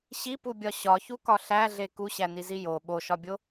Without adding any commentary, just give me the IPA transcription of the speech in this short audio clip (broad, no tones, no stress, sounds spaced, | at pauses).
ɕ i p u bʲ ɒ ɕ ɒ ç u k ɒ ɬ æ ɮ e k u ɕ æ n i z i j o ɓ o ʃ ɒ bʲ o